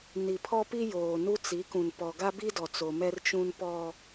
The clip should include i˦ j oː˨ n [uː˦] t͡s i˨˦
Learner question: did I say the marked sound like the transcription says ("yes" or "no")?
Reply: no